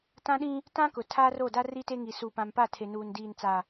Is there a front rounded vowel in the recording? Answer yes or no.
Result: no